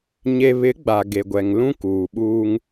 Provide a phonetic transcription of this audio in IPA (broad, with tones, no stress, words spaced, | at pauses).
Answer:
ɲe˦ βɪ˨˦ ɡ͡ba˨ɡe˨ɡʷɛ˨ŋ lũ˦kuː˨ɓuː˦ŋ